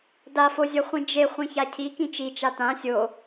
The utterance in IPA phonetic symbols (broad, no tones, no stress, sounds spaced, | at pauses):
d a f o zʲ ʌ χʷ ĩ d͡ʒ e χʷ ĩ ç a cʰ i k ĩ t͡ʃ i t͡ʃ a t ã sʲ o